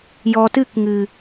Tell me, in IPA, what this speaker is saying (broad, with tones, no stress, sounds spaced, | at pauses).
j ɔ˨ t ɨ˦˨ k ŋ ɨ˨